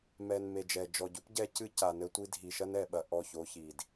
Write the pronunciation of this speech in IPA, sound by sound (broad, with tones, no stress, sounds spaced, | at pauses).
m ɛ˨ n m e˨ d͡ʒ ɛ˨ d͡ʒ ɔ˨ ɟ u˦ p ɟ ɛ˦ c ɨ˦ c a˨ n ɘ˦ tʷ i˦ dʱ i˨ ʃ ɐ˦ n ɛ˨ ɓ ɐ˨ ʔ ɔ˦˨ ç o˦ ç i˨ d